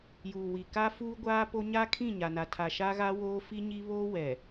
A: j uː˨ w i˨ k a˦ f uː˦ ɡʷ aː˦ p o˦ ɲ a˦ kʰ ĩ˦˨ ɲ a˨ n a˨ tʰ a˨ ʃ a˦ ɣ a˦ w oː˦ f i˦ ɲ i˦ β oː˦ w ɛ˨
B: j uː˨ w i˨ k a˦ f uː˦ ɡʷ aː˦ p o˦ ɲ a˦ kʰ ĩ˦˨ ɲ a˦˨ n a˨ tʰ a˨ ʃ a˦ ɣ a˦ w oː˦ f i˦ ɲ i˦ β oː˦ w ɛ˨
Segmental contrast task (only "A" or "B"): A